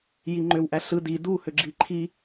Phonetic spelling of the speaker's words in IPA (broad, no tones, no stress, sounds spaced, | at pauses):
j i ŋ͡ǃ ø w ʔ æ ɬ ɯ d i d u h ø ɡ͡ǁ i ǃʰ i